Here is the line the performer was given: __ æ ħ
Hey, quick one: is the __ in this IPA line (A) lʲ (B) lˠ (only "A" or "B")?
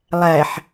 B